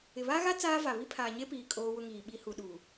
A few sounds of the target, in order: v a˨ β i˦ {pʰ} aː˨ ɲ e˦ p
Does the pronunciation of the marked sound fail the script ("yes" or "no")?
no